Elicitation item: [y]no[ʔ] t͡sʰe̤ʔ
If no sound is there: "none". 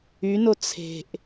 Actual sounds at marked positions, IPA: y, none

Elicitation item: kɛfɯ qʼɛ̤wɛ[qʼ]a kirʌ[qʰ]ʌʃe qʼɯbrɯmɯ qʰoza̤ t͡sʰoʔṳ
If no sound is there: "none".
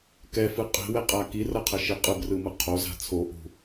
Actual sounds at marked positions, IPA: qʼ, qʰ

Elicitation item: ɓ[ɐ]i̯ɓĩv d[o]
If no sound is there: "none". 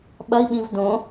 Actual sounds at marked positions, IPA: ɐ, õ

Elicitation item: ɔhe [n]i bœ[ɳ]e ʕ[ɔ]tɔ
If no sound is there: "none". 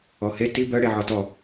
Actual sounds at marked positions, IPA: t, ɽ, ɔ

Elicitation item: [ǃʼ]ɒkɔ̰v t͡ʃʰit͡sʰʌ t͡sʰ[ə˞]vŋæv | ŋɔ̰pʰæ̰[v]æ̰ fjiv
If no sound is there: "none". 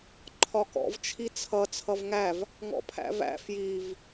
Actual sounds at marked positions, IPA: ǃʰ, ʌ, v

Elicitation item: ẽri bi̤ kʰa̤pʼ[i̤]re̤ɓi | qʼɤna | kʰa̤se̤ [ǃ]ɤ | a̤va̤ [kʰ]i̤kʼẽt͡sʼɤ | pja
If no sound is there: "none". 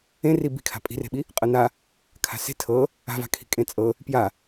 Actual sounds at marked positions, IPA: i̤, tʰ, kʰ

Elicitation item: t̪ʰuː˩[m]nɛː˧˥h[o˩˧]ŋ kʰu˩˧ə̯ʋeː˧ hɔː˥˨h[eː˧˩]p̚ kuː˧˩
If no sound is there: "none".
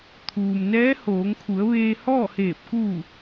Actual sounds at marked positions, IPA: m, oː˩˧, eː˧˩

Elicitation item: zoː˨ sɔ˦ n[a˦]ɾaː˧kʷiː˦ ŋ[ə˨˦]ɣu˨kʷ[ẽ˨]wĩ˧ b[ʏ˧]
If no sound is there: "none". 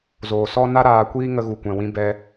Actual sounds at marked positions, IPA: a˦, ə˧, ɛ̃˨, ɛ˧

